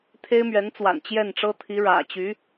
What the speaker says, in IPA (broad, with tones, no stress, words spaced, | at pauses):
t̪ʰe˥ɪ̯mɥɛ˧˥nt͡swa̰˨˩n t͡ɕjɛ˥˩nʈ͡ʂɤ˥t̪ʰi˧˥ ɻä̰˨˩ t͡ɕy˧˥